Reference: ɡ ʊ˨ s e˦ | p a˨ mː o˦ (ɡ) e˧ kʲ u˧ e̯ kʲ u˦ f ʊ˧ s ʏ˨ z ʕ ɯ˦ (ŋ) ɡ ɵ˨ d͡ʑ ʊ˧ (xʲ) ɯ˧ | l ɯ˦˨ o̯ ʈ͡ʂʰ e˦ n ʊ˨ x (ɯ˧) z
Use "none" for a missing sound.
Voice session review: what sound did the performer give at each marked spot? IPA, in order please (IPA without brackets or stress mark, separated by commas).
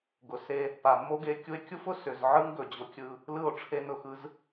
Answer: ɡ, ŋ, kʲ, ɯ˧